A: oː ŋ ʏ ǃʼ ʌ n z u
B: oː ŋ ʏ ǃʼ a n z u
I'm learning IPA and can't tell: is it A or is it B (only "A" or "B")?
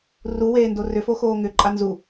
B